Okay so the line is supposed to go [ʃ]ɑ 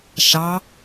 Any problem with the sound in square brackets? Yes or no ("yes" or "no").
no